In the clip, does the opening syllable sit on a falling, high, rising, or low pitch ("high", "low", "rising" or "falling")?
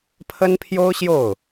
high